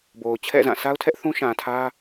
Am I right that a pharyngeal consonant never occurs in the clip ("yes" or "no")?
yes